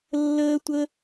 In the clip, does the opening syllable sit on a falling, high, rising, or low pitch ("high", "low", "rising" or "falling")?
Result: high